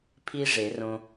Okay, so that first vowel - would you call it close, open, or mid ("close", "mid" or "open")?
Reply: close